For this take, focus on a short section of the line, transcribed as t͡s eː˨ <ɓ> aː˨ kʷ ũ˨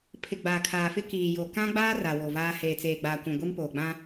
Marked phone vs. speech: incorrect: ɡ͡b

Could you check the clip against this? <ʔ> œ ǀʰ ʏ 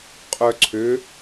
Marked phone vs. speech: incorrect: qʼ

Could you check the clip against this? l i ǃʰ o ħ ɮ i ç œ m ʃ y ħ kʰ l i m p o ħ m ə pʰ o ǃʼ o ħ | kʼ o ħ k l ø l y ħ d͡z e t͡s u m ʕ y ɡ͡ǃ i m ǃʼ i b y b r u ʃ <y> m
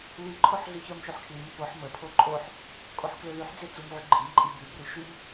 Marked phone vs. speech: correct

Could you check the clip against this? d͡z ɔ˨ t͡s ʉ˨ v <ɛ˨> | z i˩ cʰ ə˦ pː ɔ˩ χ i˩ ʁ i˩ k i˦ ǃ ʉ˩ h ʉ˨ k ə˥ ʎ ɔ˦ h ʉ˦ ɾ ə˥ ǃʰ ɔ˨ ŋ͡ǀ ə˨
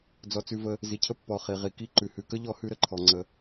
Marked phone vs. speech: incorrect: ə˨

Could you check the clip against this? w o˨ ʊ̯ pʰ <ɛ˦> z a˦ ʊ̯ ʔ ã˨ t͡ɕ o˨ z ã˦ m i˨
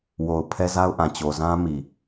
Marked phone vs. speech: correct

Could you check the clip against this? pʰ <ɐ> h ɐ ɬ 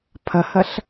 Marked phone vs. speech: correct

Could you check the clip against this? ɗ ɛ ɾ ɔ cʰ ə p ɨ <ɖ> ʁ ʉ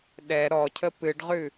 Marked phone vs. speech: correct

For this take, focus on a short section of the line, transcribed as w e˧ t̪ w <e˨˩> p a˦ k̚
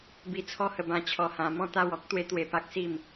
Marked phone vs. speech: correct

